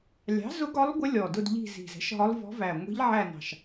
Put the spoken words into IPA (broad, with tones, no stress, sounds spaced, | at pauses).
lʲ ɑ̤˩˥ z ʊ˧˥ ɡ ɒ˧˥ lˠ ɡʷ ə˧˥ lʲ ɔ˨˩ d ʊ˦˨ d ʎ i̤˦˨ z i̤˨˩ z ɛ̤˩˥ ʃ ɦ ɒ˧˥ lˠ v ɔ̤˧˥ v æ˨˩ ŋʷ i̤˧˥ ʎ ʕ æ˦˨ n ɑ̤˨˩ ʃ